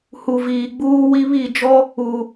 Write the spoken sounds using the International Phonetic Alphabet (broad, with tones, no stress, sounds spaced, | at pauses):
h u˨ v iː˨ ɡ͡b uː˦ w i˦ β i˦˨ d͡ʒ ɔ˦ | uː˨